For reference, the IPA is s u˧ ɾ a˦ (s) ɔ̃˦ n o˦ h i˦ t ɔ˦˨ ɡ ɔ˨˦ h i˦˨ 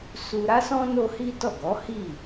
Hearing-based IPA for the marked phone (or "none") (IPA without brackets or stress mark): s